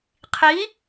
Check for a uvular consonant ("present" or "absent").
present